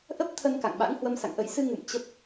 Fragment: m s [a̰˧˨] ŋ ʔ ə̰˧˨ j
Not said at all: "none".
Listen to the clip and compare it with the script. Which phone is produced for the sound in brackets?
a̰˧˨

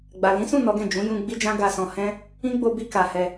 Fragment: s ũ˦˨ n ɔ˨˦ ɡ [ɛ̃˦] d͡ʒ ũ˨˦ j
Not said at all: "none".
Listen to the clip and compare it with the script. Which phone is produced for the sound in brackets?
ɛ̃˦˨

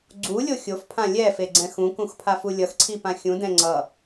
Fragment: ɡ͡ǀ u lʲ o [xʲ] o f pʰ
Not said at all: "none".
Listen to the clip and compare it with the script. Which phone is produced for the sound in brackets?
xʲ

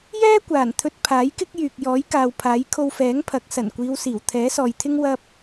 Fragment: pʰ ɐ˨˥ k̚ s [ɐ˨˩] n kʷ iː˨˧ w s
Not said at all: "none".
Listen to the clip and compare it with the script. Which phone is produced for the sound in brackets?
ɐ˨˩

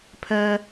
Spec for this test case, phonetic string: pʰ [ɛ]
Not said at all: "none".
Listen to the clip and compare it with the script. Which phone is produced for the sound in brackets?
ɛ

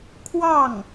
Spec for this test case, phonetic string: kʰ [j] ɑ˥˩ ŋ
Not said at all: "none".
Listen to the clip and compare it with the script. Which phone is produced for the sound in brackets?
w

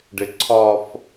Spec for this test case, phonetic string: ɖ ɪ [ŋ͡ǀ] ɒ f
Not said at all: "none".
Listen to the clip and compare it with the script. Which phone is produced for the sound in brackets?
ǀʰ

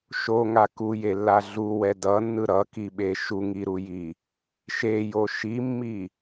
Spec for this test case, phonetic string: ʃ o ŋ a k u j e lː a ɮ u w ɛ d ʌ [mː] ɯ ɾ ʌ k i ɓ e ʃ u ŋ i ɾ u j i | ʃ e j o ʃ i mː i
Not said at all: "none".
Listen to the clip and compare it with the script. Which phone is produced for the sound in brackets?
nː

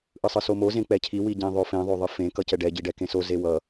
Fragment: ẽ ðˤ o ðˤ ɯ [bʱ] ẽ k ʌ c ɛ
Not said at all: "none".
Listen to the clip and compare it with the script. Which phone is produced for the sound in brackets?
f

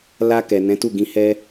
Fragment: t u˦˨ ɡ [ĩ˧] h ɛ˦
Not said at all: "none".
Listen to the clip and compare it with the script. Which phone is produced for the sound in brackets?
ĩ˧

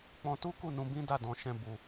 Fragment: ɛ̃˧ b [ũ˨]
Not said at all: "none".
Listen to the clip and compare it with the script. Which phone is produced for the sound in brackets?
u˨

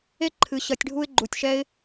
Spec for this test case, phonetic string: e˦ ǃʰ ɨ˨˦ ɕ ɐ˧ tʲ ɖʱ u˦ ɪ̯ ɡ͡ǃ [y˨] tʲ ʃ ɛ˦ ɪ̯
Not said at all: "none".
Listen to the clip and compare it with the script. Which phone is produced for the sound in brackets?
u˨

